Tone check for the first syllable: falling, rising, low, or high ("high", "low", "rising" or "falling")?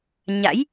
rising